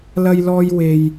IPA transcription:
l ɐ˥ j l ɔː˥ j w e˥ j

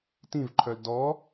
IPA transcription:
t ĩ v ǃʰ œ l d ɔ

